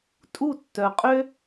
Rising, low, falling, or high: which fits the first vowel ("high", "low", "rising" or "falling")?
falling